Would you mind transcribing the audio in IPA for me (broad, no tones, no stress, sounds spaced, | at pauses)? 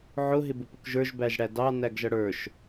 ʕ ʊ ɦ ɪ b ʊ p ʊ k ʒ ə˞ ʒ b æ ʒ ɽ æ d ɑ n æ ɡ ʒ ʌ ɽ ə˞ ʃ